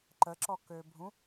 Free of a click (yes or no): no